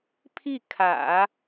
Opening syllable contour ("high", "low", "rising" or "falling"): falling